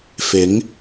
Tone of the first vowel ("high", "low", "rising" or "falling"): rising